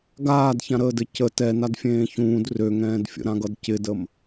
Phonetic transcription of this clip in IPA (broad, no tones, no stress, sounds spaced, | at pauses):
ɡ aː d ç ã ɾ əː d ɘ c ə t ɛ n a d fʲ ẽː ç ũː d r ø ŋ ɛ̃ː d fʲ ə̰ ɾ ã ɡ ʌ d c ɪ d ə m